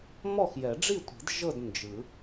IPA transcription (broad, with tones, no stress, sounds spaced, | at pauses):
m ɔ˥˨ x j ɛ˨˩˦ ɖ͡ʐ i˥˨ tʷ i̤˨˩˦ d ʒ ɤ˥˨ d n d͡ʒ ɯ˨˩˦